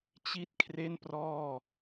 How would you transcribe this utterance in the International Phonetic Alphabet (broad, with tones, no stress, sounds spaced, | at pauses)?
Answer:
t͡ɕ i˥˩ t̚ kʰ r e˥˩ n p r ɔː˥˩